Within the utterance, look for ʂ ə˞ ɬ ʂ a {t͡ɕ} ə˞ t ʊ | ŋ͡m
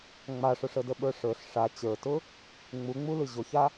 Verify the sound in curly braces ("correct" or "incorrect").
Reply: correct